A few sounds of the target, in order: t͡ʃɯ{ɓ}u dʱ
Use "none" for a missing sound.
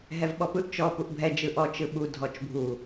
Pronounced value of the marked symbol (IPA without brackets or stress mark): ɓ